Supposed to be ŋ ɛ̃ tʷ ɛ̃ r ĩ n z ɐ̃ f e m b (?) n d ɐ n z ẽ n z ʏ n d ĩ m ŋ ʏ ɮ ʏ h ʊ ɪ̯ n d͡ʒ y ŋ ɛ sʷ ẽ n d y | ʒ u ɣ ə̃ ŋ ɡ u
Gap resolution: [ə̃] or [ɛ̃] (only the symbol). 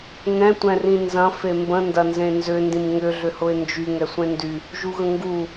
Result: ə̃